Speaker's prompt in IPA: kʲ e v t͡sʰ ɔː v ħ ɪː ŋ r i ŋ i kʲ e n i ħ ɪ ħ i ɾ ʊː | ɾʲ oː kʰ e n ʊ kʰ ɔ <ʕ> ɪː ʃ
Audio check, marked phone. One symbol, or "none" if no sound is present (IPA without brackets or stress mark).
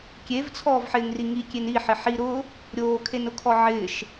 ʕ